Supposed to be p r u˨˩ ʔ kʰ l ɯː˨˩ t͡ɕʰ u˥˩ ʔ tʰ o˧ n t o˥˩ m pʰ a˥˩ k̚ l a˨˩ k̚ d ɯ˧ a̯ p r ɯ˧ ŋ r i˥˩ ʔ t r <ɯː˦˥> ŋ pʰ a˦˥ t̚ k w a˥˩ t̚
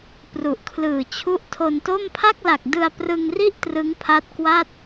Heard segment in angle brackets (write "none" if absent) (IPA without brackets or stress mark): ɯ˦˥